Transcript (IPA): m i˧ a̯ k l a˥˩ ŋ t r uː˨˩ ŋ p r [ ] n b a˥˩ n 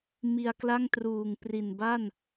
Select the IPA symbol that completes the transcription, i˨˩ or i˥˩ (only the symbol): i˨˩